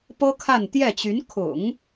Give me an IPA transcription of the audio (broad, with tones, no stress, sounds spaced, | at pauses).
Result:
p ɤ˥ kʰ a˥˧ n t̪ j ɛ˥˩ t͡ɕ y˧˥ n kʰ ʊ̰˨˩˦ ŋ